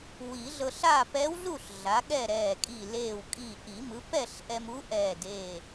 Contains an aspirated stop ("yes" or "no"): no